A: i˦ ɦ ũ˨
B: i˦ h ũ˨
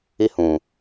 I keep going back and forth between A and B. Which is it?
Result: B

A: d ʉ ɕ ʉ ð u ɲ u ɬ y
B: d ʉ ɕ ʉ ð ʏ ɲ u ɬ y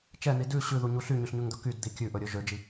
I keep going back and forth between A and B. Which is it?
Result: A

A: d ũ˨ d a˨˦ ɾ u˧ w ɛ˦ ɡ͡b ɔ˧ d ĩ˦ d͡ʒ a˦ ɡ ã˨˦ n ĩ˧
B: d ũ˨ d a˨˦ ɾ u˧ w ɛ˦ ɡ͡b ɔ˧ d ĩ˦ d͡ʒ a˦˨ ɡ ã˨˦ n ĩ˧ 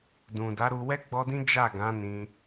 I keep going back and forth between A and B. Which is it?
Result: B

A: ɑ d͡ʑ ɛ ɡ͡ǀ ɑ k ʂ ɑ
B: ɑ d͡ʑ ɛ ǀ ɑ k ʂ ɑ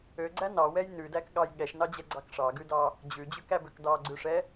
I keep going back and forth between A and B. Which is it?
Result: A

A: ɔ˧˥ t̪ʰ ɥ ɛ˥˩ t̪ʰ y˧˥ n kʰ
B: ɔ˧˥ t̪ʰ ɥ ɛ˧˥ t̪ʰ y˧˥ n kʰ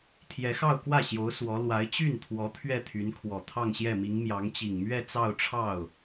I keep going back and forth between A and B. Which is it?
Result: A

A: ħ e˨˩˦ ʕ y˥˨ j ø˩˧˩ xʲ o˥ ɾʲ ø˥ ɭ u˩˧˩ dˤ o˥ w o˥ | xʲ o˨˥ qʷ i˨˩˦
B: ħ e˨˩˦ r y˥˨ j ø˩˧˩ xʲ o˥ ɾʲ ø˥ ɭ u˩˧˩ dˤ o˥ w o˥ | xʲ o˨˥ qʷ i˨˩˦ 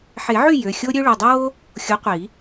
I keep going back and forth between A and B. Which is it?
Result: A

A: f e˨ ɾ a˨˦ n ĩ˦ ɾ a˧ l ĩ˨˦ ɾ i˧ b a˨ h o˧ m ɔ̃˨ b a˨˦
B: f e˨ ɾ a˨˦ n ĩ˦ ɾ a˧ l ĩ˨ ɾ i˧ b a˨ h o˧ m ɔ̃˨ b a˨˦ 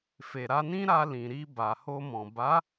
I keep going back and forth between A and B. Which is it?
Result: B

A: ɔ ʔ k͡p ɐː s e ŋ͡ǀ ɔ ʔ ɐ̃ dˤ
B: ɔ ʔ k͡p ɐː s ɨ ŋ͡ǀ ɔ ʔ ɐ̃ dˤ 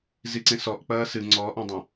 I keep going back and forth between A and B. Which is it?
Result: B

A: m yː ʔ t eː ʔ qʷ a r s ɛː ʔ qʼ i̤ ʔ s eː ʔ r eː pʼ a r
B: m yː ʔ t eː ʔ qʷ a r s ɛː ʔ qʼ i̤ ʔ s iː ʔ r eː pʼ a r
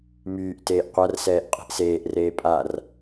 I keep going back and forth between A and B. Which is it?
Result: A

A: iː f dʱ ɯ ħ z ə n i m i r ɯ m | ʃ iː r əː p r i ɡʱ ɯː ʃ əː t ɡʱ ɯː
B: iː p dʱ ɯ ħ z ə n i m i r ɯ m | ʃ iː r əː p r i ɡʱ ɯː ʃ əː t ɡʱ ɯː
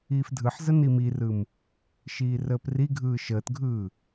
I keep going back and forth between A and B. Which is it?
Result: A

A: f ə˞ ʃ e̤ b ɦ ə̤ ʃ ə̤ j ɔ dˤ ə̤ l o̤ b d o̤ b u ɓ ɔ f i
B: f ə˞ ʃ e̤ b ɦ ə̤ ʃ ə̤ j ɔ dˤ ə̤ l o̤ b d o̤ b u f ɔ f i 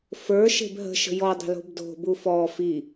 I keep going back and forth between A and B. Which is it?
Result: B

